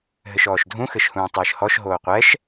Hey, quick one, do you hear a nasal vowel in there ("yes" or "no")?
yes